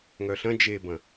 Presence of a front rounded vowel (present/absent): present